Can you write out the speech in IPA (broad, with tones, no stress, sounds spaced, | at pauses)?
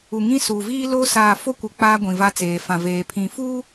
u˨ ŋ ĩ˦ s uː˨ v iː˦ l o˦ s aː˨ f o˦ kʷ ɪ˨ k͡p aː˦ ɡʷ ĩ˨ v a˦ t͡s eː˨ f ã˨ v eː˨ pʰ ĩ˨ f uː˦